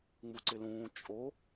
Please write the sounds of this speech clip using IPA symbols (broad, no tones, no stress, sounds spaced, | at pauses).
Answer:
ŋ͡m u ǀ ɪ l ũː t͡ʃʼ o